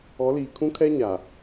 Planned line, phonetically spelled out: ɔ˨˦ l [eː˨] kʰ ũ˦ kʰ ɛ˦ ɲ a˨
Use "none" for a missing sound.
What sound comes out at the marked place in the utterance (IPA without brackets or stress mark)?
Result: iː˨